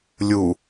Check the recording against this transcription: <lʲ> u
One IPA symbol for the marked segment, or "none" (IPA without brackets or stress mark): lʲ